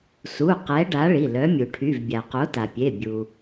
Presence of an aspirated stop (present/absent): present